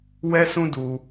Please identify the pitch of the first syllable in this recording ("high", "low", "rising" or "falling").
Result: high